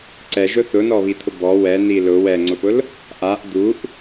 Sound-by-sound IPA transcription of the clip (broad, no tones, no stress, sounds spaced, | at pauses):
ǀ ɛ ʒ ʊ θ ʊ n ɔ β i t̪ʰ ʊ b ɔ w ɛ n i l ʊ w ɛ ŋ͡ǀ ʊ p ʊ l | ʔ a ʔ d̪ u ʔ